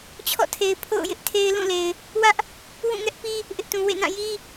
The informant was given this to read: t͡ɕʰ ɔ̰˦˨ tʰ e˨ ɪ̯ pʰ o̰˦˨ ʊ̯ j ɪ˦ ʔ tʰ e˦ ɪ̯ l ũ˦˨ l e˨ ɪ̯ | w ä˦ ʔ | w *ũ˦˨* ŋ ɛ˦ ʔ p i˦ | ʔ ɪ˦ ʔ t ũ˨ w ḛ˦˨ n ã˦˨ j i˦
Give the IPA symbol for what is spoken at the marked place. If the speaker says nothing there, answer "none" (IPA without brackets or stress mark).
ũ˦˨